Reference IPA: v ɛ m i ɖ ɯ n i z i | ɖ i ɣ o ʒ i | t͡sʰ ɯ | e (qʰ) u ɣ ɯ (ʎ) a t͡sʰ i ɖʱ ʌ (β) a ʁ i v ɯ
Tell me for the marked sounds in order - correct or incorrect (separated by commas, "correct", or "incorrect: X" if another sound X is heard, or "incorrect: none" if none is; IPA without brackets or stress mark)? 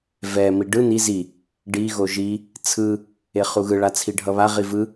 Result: incorrect: χ, incorrect: ɭ, correct